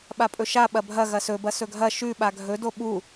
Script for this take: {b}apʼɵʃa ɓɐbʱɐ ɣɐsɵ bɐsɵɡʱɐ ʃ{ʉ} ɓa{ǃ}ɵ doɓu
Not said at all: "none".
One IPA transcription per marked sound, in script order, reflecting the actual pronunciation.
ɓ, ʉ, ɡʱ

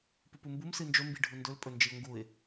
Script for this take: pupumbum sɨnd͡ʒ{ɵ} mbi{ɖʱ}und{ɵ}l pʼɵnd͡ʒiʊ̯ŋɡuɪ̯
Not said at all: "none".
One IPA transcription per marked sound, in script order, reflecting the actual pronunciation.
ɵ, ɖʱ, ɵ

